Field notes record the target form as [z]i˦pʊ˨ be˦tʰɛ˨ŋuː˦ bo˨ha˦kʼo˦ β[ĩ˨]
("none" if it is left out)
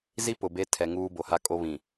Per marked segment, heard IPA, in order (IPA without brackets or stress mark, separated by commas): z, ĩ˨